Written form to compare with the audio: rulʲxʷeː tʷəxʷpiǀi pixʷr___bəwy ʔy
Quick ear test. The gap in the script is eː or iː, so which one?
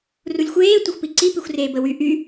eː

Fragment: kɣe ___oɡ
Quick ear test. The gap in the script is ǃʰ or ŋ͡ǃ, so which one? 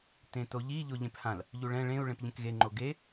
ŋ͡ǃ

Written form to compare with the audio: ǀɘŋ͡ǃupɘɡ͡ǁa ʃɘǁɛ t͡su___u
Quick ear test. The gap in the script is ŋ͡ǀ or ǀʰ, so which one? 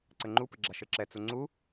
ŋ͡ǀ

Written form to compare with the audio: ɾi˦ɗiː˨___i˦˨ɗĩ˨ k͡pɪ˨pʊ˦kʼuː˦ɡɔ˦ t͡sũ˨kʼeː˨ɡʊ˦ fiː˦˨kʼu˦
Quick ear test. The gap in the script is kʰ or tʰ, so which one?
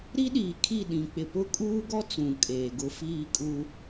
kʰ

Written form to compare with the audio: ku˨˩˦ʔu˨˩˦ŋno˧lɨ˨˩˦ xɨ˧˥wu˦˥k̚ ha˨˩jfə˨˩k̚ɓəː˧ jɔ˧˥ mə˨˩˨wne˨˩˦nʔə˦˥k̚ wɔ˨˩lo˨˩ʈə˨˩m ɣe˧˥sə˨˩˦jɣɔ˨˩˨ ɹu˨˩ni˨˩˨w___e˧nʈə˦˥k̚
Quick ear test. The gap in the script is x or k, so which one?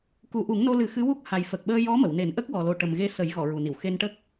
x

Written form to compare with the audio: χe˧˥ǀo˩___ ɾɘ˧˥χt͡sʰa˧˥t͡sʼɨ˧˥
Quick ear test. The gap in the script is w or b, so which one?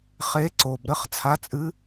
b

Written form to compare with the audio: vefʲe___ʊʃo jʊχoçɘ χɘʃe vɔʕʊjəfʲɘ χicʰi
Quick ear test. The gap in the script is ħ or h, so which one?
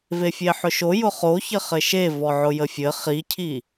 ħ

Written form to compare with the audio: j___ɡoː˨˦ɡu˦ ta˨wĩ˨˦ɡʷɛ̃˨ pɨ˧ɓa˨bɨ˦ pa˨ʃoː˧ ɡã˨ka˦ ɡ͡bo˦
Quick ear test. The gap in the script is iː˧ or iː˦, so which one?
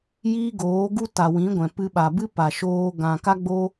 iː˦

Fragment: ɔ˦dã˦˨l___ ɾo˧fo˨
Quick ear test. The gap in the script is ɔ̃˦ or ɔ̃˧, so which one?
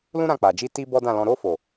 ɔ̃˧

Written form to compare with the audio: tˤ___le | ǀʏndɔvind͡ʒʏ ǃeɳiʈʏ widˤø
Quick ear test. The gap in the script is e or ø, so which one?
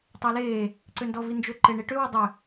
e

